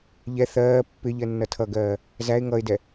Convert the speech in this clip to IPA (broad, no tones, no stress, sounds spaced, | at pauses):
ʎ ɛ θ ɜː pː ɪ ʎ ɜ nː ʌ tʰ ʌ ɡ ɜː | z æ ɪ̯ ŋ ʌ ɪ̯ d ɛ